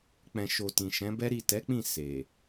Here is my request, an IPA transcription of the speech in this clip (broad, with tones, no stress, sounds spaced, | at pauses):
k͡p ɛ̃˨ ʃ o˨ t ĩ˨ ʃ ɛ̃˨˦ b ɛ˦ ɾ i˦˨ t ɛ˨˦ k͡p ĩ˦˨ s e˨